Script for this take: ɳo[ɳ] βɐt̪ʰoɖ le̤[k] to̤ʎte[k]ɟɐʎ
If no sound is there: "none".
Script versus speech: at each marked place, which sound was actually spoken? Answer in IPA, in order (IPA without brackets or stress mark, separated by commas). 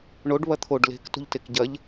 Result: ɖ, k, k